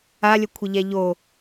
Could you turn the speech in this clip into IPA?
a lʲ ə kʷʰ ə ʎ ɛ ʎ o

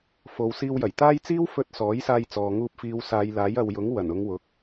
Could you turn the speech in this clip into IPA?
f o˨˧ w s iː˧ w j ɐ˨˩ j t̪ aː˥ j t͡s iː˥ w f ɵ˧ t̚ s ɔː˨˥ j s aː˧ j t͡s ɔː˨ ŋ uː˧ p̚ f iː˨˧ w s aː˨˧ j l aː˨˥ j ɐ˨ w j ʊ˨˥ ŋ w ɐ˨˩ n ʊ˨˧ ŋ w ʊ˨˥ k̚

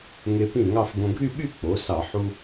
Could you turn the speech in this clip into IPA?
ŋ e˧ p ĩ˥˩ ŋ ɑ˥˧ f ɡ õ˧ ɡʱ y˥˧ ɓ y˥˧ k͡p o˩˥ s ɑ˧˩˧ ħ u˧

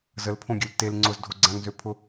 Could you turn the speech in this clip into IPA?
z ə l pʰ õ ɡʲ ø l t e l ŋ͡ǀ ʊ z dʱ o ɡ͡ǀ ã ŋ z ø pʰ ʊ

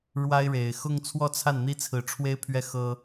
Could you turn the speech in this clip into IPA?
ɻ w a˥ ɪ̯ ɻ e˨˩ ɪ̯ x ʊ˥˧ ŋ t͡sʰ w ɔ˥˧ t͡sʰ a˥˩ n n̪ i˥ t͡sʰ ɹ̩˧˥ ʈ͡ʂʰ w e˥ ɪ̯ pʰ ɥ ɛ˥˩ x ɤ˥

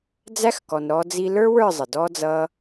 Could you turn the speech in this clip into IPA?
d͡z æ˦ x k ɔ˨ n ɾ ɔ˧ d͡z i˧ l ə˞˦ w ə˞˦˨ zˤ ə˨ d ɔ˦ d͡z ʌ˦

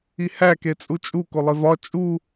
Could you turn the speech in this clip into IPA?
i h æ k e t͡sʼ u t͡ʃʼ u k o lˠ e v ɒ t͡ʃʼ u

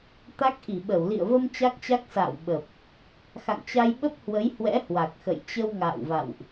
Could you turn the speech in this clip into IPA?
t̪ a˦˥ k̚ ʔ i˧˩ ɓ ə˧˩ w l ḭ˧˨ ə̯ v ə˧ m t͡ɕ a˦˥ k̚ t͡ɕ a˦˥ k̚ s a̰ː˧˨ w ɓ ə˨˩ p̚ | x a̰˧˨ ŋ t͡ɕ a˧ j ɓ ə˦˥ p̚ h w ə˨˦ j h w ɛ̰˧˥ h w a˨˩ k̚ x ə̰˧˨ j t͡ɕ ə˧ w ŋ a̰ː˧˨ w v a̰˧˨ w ʔ

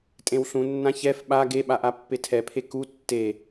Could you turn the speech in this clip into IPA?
tʼ ẽ w ɬ ũ nː ã ç ɛ f ɓ a ɡ e ɓ a ʔ a pː e tʰ ɛ pʰ e k u tː e

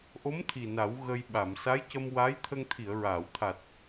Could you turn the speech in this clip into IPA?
ʔ o˧˥ m t̪ʰ i˨˩ n a˨˩˦ w ɣ ə˧ j ɓ a˨˩˨ m s a˧˥ j c ə˧ m w a˧˥ j t̪ʰ ə˧ ŋ t̪ʰ i˨˩˨ ə̯ ɹ aː˨˩˨ w t̪ʰ a˨˩ t̚

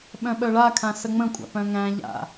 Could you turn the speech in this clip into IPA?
ɓ œ̃ ɓ œ ɭ a kʰ ã s ə ŋ͡m ə̃ kʷʼ a̰ p œ̃ ŋ æ̃ ʎ a̰

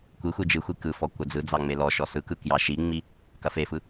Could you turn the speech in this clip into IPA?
kʷ i xʷ i d͡ʒ ɯ xʷ i k ɯ f ɔ kʷ ɐ d͡z ɯ d͡z ɑ ŋ͡m e l ɔ ʃ ɔ s ɯ k ɯ k j ɑ ʃ i ŋ͡m i | k ɐ f e f ɯ

